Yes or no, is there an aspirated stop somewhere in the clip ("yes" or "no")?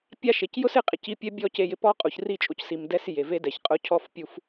yes